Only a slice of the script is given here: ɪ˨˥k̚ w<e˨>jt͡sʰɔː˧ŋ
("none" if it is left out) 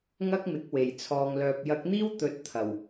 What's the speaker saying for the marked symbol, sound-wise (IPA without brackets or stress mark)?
e˨˩